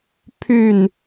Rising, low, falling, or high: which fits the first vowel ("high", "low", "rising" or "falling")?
falling